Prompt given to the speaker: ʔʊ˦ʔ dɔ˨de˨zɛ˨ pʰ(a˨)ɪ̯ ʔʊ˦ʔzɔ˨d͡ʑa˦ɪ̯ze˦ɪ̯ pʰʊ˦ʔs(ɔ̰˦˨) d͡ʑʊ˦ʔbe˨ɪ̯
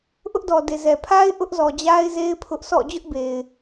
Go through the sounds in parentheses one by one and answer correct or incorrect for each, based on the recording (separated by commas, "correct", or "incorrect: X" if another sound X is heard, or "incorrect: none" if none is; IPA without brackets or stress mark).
incorrect: a˦, correct